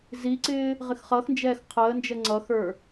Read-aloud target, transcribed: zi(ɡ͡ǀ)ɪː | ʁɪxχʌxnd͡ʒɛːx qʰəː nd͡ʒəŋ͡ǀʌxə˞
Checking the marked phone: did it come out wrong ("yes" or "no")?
yes